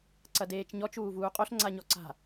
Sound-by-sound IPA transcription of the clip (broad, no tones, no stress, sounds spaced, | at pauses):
ǀ ɐ d eː t͡ʃ ɲ ɔ t͡ʃ uː v uː qʼ o ɬ ŋ͡ǀ a ɲ ɔ ǀ a̤